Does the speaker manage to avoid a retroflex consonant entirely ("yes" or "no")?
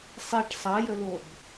no